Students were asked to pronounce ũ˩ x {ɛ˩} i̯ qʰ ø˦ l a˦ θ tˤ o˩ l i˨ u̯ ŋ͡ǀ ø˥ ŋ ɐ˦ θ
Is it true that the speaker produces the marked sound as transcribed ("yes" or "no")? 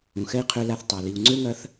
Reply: no